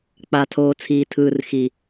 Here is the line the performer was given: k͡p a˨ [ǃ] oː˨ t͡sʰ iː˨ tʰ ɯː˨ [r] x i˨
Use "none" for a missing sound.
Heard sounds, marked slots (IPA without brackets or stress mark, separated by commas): tʰ, r